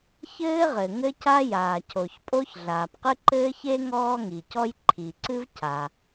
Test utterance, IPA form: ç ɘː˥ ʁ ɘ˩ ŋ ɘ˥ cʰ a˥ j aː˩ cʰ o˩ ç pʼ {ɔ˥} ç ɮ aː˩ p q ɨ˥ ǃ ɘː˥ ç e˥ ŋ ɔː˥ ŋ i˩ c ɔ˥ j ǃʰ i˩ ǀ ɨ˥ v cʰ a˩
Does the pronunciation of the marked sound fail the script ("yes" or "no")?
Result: yes